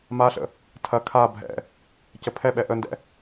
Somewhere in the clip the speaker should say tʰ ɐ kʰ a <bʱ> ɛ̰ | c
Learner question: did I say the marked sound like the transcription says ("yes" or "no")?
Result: yes